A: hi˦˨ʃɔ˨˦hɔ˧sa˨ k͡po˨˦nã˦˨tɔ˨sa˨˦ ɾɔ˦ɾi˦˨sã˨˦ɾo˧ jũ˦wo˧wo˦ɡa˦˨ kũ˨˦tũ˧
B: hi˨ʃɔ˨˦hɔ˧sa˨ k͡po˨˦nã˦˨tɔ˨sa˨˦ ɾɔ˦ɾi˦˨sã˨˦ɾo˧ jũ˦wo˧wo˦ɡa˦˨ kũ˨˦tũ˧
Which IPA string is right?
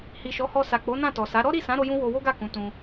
B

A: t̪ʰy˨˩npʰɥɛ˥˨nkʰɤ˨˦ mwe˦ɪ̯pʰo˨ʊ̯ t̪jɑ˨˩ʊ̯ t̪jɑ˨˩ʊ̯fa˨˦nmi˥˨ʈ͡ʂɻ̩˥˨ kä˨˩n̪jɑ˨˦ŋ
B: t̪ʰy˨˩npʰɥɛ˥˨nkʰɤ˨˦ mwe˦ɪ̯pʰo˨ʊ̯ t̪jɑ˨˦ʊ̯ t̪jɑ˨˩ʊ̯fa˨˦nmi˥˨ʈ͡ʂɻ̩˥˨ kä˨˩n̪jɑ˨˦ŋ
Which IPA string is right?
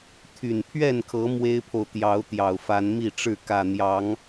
B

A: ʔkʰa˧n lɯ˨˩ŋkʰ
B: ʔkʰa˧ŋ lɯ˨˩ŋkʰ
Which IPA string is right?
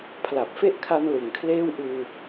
A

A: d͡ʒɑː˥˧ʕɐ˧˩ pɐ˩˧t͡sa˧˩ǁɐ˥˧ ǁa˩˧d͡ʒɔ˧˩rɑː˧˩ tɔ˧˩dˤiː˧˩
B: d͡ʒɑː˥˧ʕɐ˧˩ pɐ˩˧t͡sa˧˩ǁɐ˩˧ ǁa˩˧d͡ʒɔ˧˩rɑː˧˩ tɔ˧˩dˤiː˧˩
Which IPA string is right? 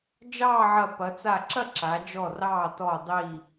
A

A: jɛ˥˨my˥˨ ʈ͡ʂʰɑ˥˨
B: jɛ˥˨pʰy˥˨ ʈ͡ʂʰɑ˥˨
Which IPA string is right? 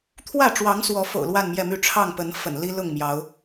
A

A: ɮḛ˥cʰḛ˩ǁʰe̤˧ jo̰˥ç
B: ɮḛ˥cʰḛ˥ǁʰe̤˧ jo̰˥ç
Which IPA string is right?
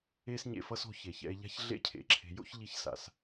A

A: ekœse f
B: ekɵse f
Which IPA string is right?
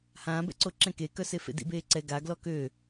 A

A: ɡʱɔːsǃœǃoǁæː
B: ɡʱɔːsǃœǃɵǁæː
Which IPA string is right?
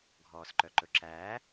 B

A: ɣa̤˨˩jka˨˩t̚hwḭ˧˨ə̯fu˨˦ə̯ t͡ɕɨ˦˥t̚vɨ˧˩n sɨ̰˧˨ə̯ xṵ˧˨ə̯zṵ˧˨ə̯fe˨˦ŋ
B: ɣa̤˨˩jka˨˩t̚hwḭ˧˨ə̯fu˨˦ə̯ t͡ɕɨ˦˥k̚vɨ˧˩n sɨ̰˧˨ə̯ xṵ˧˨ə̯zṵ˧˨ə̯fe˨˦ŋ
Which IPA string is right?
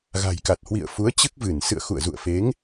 B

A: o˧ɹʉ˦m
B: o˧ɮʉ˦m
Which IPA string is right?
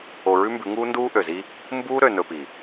A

